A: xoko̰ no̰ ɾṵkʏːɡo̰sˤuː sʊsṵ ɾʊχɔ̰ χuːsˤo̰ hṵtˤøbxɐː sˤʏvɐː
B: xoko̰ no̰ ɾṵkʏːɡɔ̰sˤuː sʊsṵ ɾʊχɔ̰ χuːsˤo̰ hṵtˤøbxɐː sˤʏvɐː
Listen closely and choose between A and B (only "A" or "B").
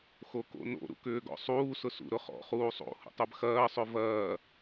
B